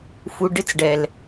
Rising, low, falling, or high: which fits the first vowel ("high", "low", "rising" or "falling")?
low